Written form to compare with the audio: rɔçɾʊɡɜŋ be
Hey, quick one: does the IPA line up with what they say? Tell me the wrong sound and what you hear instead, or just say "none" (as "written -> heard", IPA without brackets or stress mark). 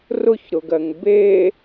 ɔ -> ʊ